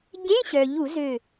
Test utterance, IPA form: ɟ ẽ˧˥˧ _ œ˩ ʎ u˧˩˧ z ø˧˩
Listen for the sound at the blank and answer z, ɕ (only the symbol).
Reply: ɕ